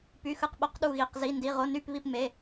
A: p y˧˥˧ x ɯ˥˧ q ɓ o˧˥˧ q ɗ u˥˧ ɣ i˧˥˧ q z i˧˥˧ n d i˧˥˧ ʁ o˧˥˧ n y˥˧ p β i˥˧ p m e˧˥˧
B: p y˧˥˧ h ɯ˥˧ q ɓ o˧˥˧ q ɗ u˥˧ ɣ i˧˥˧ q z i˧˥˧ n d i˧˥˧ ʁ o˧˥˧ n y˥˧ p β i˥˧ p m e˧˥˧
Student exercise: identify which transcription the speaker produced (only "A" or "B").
A